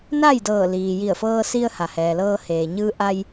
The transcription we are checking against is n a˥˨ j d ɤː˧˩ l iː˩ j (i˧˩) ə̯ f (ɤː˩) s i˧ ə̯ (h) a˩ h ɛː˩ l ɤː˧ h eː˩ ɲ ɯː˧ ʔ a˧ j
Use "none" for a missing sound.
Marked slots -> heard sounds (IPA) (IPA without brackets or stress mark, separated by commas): i˧˩, ɤː˧, h